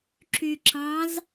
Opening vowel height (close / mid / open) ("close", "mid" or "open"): close